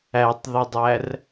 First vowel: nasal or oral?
oral